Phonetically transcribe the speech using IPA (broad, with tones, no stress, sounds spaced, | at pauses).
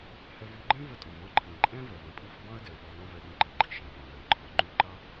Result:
h ɛ˧ v ʉ˧ ɡ͡ǃ ɛ̃˦ v ə˧ tʼ ɔ̃˨ v ɔ̃˦˨ ǃʰ ĩ˨ ǃʼ ɛ̃˦ v ɛ˨ v ə̃˨ pʼ i˦˨ v b ɑ̃˦ ə̯ d ɛ˨ ə̯ ɓ ɔ˧ n ɔ̃˦ v ɛ˧ ɗ ĩ˧ ǃ i˨ ɡ͡ǃ i˦ ʃ ə̃˨ r ɔ̃˨ ɡ ɛ̃˨ ə̯ ǃʰ ɔ˨ ŋ͡ǃ ʉ˦˨ ǃ ɑ˦